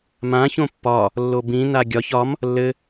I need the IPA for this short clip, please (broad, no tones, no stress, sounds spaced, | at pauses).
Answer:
m ã ç õ pː ɒ | lː o b ĩ n a ɡʲ ɒ ç ɒ m | lː ɘ